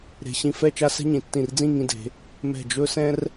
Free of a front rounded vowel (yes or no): yes